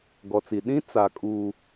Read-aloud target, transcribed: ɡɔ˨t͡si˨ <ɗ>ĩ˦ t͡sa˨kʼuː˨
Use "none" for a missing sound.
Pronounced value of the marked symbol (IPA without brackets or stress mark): ɗ